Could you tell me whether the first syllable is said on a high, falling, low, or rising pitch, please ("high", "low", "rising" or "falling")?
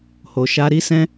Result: low